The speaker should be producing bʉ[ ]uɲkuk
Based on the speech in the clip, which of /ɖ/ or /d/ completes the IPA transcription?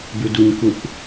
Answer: d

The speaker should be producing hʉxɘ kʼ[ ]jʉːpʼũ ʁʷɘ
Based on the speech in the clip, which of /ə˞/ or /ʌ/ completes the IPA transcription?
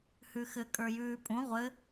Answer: ə˞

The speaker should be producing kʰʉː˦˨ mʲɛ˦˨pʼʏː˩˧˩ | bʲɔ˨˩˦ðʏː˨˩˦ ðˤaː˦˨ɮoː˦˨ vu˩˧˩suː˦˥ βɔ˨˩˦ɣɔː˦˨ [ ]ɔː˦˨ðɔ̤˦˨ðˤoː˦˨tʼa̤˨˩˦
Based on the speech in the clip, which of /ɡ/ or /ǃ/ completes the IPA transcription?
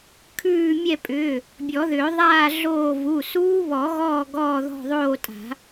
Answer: ɡ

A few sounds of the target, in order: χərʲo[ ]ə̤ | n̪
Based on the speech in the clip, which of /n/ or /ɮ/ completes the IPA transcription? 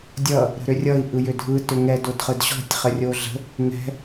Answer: ɮ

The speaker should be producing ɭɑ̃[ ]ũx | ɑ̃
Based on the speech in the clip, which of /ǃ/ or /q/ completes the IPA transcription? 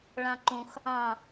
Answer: ǃ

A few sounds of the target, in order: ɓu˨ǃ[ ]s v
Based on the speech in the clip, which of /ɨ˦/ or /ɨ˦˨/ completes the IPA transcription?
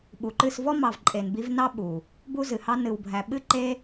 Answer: ɨ˦˨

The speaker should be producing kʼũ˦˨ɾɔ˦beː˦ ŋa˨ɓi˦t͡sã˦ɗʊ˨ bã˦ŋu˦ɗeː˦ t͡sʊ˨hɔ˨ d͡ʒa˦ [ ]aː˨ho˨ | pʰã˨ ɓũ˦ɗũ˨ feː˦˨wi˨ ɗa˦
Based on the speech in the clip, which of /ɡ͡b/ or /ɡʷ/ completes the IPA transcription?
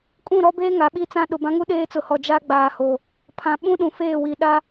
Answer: ɡ͡b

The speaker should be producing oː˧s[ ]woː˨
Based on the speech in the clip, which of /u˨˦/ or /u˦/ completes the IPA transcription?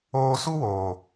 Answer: u˦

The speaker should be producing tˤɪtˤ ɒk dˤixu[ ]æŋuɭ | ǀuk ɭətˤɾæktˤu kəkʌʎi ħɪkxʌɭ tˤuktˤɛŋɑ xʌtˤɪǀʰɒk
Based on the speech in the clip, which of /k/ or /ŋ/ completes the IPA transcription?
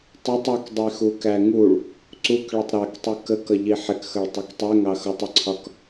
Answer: k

